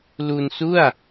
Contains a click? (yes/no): no